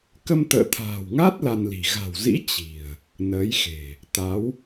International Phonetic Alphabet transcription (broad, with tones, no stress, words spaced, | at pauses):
kə˧mt̪ə̰ː˧˨t̪ʰa̤ː˨˩wŋa˦˥t̚ la˧nli̤˨˩ ɣa̤˨˩wzḭ˧˥ t͡ɕi̤˨˩ə̯ | nəː˨˦jxe̤˨˩ | t̪a˨˦w